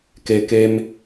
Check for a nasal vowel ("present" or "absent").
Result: absent